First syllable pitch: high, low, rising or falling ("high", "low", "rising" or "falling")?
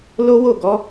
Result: high